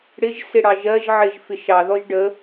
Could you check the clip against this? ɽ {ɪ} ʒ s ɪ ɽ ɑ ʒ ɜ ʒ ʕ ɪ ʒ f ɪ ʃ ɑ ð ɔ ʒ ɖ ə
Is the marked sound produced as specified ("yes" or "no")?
yes